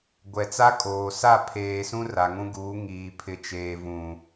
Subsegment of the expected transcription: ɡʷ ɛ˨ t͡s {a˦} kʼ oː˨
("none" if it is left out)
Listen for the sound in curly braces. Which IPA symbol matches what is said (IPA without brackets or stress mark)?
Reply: a˦